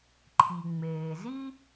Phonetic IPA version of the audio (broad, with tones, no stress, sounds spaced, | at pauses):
ǃʰ i˩ ŋ͡m eː˩ z i˥